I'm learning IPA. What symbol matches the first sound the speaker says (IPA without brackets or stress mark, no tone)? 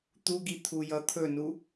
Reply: t̪